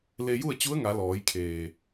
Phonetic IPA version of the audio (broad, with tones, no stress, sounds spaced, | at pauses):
l e˧ j u˥˨ ə̯ t͡ɕ u˧˥ ə̯ ŋ a˩˧ l ɔː˩˧ j kʰ eː˩